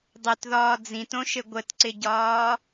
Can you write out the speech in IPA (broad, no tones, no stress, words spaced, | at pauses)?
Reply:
dˤʏtðɒː d͡zĩtõʃɘ ɡʷətǀɪɟɒː